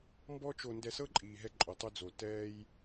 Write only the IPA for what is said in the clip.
mbɔ˦t͡ʃo˧ ndɛ˧sɤ˦ǃʼiː˨ɦɛ˧ ǃʼo˨tˤo˧d͡zo˨ tɛː˧j

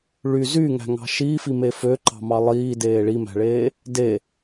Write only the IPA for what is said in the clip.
ɭy zyŋæ̤ŋɑ̤ ʃifime føǃɑ̤mɑ lˠiːdeː ɭimæ̤ɭeː | de

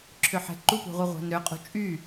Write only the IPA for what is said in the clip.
ǁʰʏħɛ̤ǃupṳ ʁʷəʁʷa̤nɾʏqʼṳ t͡ʃʼy

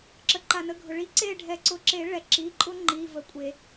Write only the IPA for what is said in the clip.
ǁə˩ǃa˩nə˩˧˩ɡʱʊ˩ ɭi˨˥ǀe˦˨ ɖʱɛ˨˩˦ ǀʊ˩˧˩ǁe˨˩˦ ɭɛ˩ǁi˩˧˩ ǃʼʊ˦ ŋ͡ǃi˩˧˩və˨˩˦kʷʼe˨˩˦

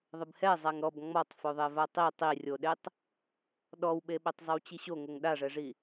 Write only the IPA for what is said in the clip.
ðˤɪbhɛ zˤaŋɾɔb ŋ͡mɔtˤfoðˤe vatˤi tˤirʲoɗetˤ | ɗɔwɓeɓɛtˤ zˤɪwt͡ɕiɕo ŋoŋɗaʐɛʐi

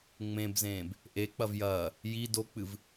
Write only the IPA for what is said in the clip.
ŋ͡mẽbzẽːb | ʔe k͡pɐvjɐː | ji dok͡pɨv

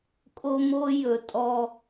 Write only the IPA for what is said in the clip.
kʼo˦mo˦jɵ˨ tʼɔ˦

